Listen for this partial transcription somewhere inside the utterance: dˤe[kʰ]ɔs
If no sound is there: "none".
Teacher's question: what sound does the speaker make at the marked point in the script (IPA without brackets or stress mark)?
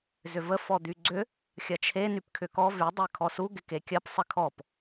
kʰ